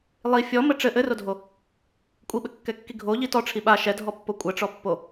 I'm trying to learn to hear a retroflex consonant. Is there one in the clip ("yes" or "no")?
yes